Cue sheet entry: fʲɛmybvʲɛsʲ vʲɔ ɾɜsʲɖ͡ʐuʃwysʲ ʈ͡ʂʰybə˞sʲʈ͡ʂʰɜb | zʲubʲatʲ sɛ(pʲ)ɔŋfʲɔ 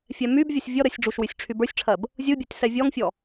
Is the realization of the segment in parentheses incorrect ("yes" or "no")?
yes